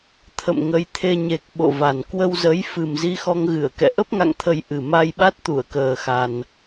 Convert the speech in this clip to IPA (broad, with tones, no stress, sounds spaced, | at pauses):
t̪ʰ ə̰˧˨ m ŋ ə˨˦ j t̪ʰ e˧ ɲ e˨˩ k̚ ɓ o̰˧˨ v a˨˩ n k w ə˧ w z ə˨˦ j f ɨ˨˩ m z i˧ x ɔ˧ ŋ ɣ ɨ˧˩ ə̯ k ɛ̰˧˨ ʔ ə˦˥ p̚ ŋ a̰˧˨ ŋ t̪ʰ ə˨˩ j ʔ ɨ˨˩ m a˧ j ɓ a˦˥ t̚ t̪ u˧˩ ə̯ k əː˨˩ x a˨˩ n